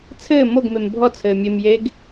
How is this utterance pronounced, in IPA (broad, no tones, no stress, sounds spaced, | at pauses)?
t͡sʰ ɘː m o ɡ m e m bʱ ɔ t͡sʰ ɘː mʲ e m j e ɡ